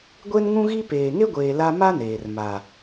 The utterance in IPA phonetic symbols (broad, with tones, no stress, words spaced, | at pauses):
ɡʷe˦nŋũ˦ɣi˦ peː˨ŋe˦ɡʷeː˨ la˦ ma˦ neː˨r ma˨